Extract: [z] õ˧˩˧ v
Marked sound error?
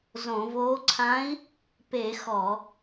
no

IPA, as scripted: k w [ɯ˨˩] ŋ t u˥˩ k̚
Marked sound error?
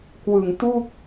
no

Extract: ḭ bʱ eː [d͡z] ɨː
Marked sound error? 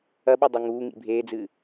no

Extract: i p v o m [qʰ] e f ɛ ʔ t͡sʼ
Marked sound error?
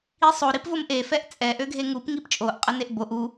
yes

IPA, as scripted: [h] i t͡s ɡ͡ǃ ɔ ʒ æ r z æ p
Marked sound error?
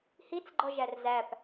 no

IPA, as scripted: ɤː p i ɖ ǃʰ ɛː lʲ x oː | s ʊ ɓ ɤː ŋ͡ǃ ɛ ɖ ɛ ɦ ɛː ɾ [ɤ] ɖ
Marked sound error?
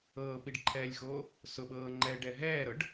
no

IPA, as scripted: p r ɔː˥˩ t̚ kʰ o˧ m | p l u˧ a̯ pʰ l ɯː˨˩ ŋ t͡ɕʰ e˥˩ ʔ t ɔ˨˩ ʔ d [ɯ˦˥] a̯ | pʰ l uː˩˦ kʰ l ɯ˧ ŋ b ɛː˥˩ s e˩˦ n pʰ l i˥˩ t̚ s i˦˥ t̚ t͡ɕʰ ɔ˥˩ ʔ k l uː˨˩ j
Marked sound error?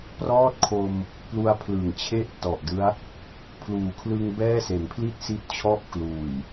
no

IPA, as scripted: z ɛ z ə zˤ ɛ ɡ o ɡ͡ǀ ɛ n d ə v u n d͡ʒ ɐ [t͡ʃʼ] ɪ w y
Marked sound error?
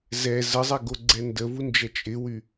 no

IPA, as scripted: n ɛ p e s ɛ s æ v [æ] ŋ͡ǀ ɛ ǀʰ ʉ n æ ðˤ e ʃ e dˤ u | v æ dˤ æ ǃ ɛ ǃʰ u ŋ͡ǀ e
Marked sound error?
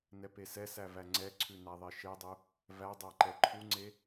no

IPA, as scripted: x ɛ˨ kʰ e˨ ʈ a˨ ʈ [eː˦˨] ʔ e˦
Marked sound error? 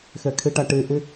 yes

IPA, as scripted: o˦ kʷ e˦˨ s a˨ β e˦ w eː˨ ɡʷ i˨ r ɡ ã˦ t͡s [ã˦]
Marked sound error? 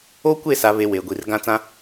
no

